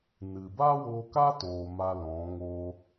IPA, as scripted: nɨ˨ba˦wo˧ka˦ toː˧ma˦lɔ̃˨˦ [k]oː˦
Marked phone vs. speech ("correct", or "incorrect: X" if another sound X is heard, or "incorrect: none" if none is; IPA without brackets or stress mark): incorrect: ŋ